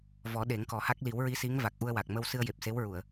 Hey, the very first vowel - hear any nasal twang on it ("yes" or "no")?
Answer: no